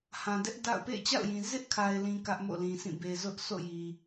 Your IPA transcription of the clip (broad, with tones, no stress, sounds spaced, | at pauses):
h ã˨ d ɛ˦ ʔ d a̰˦˨ ʊ̯ p ḛ˦˨ ɪ̯ t͡ɕ a̰˦˨ ʊ̯ j ĩ˨ z ɪ˦ ʔ kʰ a˨ ɪ̯ l ĩ˨ k ä˦ ʔ m o̰˦˨ l ĩ˨ sʰ ĩ˦˨ b e˨ z ʊ˦ ʔ sʰ o̰˦˨ j i˨